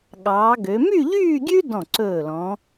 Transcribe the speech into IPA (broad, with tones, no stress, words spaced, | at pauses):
ɠɑː˩˧ɡø˩˧ my˥˧ʎyː˥˧ɡʲʉ˥ dɔ̃˧˩ǀɵː˧˩lɔ̃˩˧